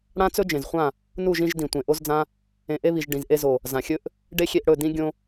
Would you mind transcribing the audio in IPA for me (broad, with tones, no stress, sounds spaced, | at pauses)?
ɽ ã˦ t͡s ɵ˦ d͡ʒ ẽ˨ z χʷ ã˦˨ | n u˦˨ ʒ ĩ˧ ʒ d ĩ˨ tʷ ẽ˨ ʔ o˦ z d͡z ã˦ | ẽ˨ ʔ e˧ β i˨ ʒ ɖ ĩ˨ z ʔ e˧ z o˨ | z ã˨ xʲ ɵ˦ ʔ | ɖ e˦ xʲ e˧ ʔ ɽ ɵ˦˨ d ĩ˦ ɡʲ õ˦